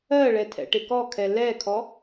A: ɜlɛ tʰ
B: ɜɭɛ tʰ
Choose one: B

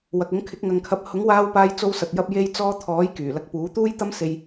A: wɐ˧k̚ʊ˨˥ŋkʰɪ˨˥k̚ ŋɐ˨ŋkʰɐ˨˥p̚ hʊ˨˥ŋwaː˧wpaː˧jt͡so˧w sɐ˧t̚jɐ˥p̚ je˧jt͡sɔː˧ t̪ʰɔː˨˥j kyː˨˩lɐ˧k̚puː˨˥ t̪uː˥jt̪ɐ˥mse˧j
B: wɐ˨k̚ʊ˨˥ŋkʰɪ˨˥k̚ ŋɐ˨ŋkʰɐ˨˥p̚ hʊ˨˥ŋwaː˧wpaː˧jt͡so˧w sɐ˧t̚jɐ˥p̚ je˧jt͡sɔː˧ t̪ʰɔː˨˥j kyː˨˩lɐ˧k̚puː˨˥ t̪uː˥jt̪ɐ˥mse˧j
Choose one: B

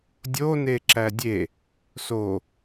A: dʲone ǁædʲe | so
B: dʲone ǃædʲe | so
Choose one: A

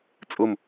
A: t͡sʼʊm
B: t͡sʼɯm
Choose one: A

